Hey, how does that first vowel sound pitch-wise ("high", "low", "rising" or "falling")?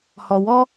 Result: low